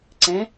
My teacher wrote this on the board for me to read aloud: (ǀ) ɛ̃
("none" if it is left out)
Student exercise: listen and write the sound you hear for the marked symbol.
ǀ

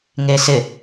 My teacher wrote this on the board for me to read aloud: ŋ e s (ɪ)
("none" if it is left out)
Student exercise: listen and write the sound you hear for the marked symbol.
ɪ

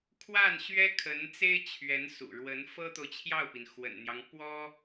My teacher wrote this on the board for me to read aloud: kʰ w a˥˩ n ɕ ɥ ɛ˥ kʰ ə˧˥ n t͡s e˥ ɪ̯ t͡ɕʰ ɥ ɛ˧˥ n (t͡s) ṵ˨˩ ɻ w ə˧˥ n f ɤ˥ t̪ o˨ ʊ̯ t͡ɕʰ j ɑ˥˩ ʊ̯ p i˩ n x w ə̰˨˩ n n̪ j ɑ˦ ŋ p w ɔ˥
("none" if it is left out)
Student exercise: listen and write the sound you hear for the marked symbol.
s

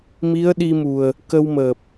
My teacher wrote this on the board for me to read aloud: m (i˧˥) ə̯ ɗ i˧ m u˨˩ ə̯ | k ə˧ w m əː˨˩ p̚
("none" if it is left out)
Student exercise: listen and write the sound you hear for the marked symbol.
i˧˥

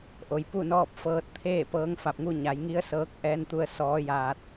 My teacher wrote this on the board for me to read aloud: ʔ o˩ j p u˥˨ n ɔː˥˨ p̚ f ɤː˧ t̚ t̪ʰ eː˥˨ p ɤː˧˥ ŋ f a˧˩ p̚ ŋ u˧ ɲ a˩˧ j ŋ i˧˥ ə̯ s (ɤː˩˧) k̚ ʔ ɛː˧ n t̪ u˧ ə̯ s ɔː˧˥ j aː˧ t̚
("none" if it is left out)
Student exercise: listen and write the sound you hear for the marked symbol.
ɤː˧˥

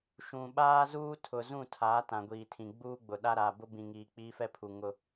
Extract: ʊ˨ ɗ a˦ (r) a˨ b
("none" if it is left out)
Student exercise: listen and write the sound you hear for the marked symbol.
ɾ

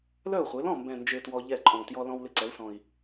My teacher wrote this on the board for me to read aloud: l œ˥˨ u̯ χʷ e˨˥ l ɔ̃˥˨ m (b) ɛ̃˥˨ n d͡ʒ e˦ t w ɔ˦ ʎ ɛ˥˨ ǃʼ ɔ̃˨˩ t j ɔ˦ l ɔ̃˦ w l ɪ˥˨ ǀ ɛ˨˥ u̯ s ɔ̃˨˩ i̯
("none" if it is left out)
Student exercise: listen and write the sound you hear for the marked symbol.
b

